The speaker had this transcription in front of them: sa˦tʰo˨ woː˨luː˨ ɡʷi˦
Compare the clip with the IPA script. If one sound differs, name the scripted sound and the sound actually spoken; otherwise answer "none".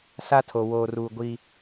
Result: l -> r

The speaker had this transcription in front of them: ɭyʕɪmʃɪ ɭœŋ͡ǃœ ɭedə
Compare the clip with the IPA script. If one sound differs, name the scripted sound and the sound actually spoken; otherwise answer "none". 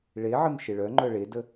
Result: y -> e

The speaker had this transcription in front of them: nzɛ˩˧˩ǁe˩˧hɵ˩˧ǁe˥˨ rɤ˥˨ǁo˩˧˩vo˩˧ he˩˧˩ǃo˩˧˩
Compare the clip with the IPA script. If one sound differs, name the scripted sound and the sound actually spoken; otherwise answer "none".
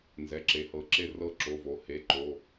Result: ɵ˩˧ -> ɤ˩˧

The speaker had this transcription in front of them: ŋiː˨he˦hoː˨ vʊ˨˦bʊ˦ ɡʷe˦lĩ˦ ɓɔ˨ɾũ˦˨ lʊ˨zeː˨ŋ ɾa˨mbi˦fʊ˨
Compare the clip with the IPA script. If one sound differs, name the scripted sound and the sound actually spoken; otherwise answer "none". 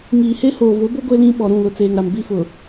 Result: z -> t͡s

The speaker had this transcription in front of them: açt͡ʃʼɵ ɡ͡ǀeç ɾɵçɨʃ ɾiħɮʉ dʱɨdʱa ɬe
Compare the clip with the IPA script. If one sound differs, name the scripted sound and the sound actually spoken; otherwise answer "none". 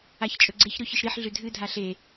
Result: none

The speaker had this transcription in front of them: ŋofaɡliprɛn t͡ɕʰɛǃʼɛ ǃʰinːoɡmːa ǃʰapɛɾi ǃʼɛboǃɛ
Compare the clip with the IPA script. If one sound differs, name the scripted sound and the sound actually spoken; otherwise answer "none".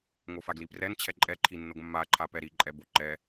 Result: none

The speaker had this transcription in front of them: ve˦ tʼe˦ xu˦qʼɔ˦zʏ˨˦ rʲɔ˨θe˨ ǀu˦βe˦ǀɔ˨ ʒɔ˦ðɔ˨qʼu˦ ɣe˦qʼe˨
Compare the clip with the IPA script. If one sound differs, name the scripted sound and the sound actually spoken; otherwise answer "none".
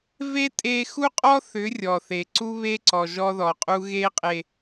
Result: z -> θ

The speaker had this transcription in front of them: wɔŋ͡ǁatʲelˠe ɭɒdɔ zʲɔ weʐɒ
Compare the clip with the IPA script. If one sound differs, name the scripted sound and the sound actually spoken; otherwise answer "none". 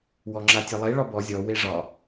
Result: d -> b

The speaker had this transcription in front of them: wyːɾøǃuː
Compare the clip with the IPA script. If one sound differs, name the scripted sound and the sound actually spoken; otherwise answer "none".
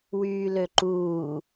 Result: ɾ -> l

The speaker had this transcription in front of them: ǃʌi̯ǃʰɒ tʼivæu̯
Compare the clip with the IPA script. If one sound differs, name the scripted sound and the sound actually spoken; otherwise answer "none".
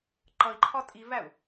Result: none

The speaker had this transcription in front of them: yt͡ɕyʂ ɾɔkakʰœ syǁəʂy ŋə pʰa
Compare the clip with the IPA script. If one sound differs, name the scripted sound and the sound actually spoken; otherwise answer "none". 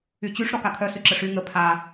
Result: none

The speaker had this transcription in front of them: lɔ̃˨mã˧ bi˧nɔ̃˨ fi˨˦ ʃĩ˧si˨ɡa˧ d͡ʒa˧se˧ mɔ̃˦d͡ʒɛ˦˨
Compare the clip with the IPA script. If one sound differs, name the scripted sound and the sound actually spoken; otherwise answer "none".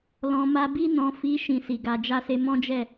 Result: ã˧ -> a˧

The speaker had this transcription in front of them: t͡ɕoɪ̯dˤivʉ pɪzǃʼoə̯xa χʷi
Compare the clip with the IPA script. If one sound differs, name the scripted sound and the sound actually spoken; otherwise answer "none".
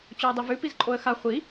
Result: ɪ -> i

